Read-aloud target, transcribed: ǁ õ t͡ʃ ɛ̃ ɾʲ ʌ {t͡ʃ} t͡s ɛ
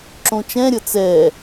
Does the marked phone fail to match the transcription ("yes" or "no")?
yes